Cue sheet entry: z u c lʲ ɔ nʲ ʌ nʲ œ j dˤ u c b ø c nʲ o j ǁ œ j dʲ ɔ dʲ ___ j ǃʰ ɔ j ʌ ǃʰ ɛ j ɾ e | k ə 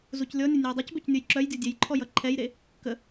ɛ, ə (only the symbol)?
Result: ɛ